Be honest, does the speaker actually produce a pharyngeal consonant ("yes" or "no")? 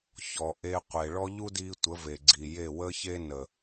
no